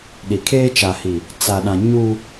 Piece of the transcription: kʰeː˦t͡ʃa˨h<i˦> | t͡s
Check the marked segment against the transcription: incorrect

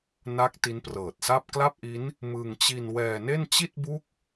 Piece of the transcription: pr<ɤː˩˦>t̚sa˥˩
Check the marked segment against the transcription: incorrect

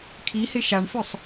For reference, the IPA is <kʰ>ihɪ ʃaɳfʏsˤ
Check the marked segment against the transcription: correct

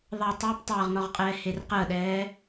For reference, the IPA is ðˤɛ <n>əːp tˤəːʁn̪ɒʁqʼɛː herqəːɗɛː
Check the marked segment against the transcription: incorrect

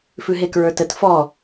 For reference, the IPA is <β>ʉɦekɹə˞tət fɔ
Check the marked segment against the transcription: incorrect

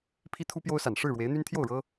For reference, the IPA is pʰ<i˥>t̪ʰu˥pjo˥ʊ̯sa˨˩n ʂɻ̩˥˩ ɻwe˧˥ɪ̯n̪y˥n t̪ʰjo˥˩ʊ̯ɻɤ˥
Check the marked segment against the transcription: correct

